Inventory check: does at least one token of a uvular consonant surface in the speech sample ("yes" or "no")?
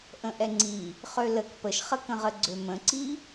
yes